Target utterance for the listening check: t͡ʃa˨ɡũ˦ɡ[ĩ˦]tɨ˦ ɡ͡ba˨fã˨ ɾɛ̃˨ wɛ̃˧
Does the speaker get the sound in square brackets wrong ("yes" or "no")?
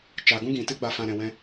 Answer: yes